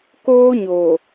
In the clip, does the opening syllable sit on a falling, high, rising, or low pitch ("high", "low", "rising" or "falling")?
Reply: high